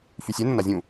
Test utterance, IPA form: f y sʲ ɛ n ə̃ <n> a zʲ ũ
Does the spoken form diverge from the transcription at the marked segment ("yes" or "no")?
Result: no